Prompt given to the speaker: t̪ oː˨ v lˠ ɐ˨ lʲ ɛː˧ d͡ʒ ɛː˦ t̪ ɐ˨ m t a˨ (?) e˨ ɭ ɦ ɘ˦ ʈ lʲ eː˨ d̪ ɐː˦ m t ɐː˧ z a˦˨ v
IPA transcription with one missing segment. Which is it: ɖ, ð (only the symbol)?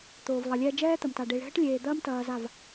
ɖ